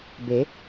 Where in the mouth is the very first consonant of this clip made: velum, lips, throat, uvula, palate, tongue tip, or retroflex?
lips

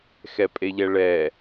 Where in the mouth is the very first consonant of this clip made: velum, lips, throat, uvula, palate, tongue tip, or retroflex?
velum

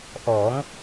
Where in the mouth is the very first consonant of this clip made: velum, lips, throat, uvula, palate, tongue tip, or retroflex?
throat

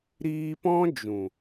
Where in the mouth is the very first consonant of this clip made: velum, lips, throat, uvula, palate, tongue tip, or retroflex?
tongue tip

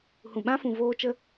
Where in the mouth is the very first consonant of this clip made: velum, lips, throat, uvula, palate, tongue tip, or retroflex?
throat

